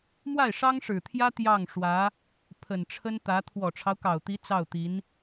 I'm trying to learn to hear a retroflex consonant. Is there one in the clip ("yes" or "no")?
yes